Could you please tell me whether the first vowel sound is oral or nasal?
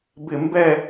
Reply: oral